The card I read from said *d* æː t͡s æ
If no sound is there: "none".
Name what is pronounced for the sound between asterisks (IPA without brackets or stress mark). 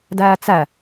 d